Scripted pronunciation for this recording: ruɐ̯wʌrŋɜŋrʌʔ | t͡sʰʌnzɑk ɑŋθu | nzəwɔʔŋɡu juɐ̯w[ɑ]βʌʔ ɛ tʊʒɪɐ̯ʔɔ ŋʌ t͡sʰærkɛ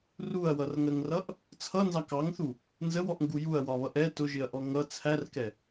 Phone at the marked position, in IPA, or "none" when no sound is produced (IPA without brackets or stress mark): ɒ